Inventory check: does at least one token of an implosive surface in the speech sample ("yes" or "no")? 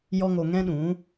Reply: yes